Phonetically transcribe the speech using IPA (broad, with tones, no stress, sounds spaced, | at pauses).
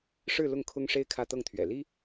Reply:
ʂ ɻ̩˥˧ l ʊ˥˩ ŋ kʰ ʊ˥ ŋ ʂ e˥ ɪ̯ kʰ ä˥˧ t̪ ɤ˥˩ ŋ t̪ʰ ɥ ɛ̰˨˩ l i˥